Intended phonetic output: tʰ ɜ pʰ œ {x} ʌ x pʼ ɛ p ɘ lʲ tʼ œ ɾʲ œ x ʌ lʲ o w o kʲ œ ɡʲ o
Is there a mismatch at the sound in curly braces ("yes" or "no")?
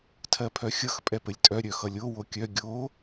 yes